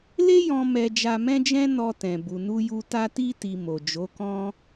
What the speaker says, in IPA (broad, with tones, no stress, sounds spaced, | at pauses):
l e˦ j ɔ̃˧ m ɛ˧ d͡ʒ a˧ m ɛ̃˦ d͡ʒ ɛ̃˦ n ɔ˧ t ɛ̃˨ b u˨ n u˧ j u˧ t a˧ t i˧ t i˨ m o˨ d͡ʒ o˨˦ k ɔ̃˦